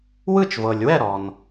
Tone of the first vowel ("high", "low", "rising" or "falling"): falling